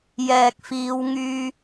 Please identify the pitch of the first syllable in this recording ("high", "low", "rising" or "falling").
low